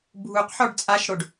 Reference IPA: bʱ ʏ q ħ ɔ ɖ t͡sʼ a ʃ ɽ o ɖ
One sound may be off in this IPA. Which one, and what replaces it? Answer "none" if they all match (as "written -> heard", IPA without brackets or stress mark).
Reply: ʏ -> u